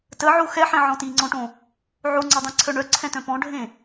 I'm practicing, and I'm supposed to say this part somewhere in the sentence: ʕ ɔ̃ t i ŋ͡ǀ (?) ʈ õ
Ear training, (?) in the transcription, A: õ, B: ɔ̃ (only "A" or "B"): B